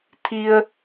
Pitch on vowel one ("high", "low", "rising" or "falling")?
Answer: low